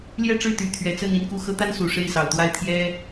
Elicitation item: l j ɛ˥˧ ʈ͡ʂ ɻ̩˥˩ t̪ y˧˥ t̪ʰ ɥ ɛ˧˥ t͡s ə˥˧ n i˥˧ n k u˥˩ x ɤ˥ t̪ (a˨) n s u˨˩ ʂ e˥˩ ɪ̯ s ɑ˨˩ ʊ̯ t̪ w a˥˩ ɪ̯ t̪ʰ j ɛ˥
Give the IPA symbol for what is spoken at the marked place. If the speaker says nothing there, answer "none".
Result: a˥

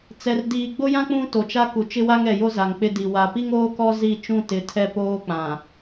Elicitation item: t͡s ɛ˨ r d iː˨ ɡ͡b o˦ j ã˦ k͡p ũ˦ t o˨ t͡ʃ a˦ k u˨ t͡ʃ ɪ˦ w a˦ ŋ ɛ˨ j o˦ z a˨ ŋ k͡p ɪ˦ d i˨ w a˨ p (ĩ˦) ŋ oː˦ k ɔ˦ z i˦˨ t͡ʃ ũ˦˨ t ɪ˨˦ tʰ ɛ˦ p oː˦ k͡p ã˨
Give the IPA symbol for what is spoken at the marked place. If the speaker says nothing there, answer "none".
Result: i˦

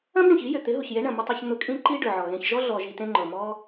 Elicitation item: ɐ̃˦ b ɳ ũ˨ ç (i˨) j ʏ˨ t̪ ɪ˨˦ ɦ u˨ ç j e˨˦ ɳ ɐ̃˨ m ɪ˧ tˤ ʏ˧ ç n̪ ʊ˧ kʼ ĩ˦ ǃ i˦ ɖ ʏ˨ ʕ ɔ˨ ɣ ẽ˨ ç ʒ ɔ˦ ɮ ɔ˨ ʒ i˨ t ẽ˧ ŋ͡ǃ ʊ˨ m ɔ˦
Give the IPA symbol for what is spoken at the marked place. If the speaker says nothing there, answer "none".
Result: i˨˦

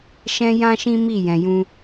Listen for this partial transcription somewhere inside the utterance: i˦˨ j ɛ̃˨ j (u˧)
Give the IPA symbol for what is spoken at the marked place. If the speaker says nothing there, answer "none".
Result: ũ˧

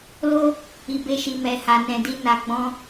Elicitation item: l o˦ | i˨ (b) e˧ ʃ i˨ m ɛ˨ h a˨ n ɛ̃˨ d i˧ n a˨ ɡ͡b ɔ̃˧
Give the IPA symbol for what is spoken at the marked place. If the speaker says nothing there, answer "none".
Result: b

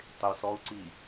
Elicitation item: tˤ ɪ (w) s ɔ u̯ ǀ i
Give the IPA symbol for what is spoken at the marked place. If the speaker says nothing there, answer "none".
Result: w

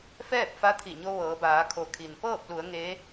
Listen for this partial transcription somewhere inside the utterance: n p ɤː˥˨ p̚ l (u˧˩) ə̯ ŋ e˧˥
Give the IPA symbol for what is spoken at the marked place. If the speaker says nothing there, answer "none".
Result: u˩˧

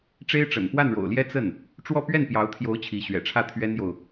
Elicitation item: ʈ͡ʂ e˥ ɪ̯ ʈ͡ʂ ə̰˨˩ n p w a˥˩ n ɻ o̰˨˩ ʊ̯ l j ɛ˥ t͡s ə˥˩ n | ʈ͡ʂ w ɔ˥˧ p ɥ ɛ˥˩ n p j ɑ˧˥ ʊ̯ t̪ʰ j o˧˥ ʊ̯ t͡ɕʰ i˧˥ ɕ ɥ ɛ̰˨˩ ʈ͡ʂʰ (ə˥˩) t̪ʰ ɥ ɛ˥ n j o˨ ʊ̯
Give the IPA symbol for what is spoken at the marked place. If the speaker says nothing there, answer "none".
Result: ä˥˩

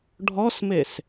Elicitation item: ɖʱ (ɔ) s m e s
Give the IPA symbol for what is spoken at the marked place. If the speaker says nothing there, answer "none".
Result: ɔ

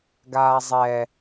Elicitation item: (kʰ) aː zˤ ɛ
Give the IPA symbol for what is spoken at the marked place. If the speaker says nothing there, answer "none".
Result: ɡ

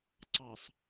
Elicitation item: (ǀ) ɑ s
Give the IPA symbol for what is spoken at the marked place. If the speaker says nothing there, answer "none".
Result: ǀ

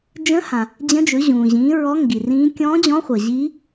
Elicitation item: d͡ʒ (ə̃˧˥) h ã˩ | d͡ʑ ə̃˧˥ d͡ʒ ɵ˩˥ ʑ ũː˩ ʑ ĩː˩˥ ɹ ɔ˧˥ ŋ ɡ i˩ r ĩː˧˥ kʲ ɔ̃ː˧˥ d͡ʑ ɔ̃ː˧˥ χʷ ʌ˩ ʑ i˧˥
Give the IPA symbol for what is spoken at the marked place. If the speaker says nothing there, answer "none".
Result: ə̃˧˥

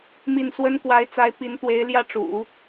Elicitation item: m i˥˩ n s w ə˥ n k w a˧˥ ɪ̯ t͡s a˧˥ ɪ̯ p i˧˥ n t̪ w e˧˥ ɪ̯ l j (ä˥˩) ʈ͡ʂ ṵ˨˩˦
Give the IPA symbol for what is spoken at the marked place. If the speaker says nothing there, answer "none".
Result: ä˥˩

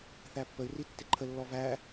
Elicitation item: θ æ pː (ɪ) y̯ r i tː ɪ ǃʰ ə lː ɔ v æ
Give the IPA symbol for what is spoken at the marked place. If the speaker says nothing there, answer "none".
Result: ə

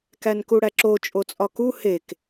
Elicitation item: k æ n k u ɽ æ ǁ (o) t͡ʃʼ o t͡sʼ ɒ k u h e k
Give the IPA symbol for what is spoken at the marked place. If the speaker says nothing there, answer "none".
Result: o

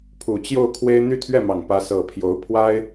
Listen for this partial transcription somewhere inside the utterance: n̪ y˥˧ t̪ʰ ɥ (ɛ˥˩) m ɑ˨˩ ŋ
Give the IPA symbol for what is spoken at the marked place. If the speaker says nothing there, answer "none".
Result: ɛ˥˩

